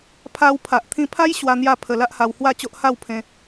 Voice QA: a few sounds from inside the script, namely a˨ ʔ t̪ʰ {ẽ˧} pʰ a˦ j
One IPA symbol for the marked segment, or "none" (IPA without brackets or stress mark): ĩ˧